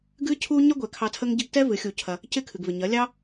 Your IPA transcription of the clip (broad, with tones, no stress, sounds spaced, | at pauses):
ɡ ɨ˦ cʰ u˦ ɲ ɐ˦ ɡʷ ɛ˨ kʰ ɑ˧ tʰ ə˦ ŋ ɟ ɪ˦ ɡ t ɛ˦ v ɨ˨˦ xʲ u˧ cʰ ɐ˧ | c ɪ˦˨ kʰ ɨ˨ ɡ v ɪ˨ ɲ ɐ˨˦ lʲ ɑ˦